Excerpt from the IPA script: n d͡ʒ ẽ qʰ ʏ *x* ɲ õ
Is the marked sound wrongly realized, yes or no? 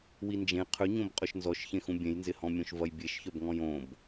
yes